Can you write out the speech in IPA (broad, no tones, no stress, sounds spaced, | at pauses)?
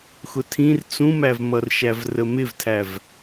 x ʊ tʰ ĩ r t͡s ũ m æ v m ʌ r ʃ æ v r ə m ɪ v tʰ æ v